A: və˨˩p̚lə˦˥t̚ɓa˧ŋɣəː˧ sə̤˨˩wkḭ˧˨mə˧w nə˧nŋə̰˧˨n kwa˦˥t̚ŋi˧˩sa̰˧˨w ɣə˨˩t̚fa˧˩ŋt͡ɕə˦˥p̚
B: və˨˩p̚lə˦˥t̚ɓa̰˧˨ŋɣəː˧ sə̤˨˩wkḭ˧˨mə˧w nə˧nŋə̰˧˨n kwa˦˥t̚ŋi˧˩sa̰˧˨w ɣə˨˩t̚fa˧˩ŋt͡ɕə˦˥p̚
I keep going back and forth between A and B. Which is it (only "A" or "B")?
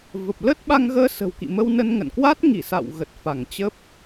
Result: A